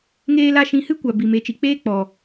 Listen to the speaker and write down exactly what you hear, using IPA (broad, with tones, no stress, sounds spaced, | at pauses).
ŋ eː˦ l a˦ ʃ ĩ˧ h ɨ˦ kʷ a˨ b i˨ m e˨˦ t͡ʃ i˨ k͡p eː˦ k͡p ɔ˨